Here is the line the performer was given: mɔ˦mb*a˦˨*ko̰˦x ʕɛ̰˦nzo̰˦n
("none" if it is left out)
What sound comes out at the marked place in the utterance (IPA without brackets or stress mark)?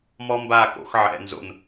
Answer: a˦˨